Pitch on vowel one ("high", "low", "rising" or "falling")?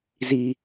high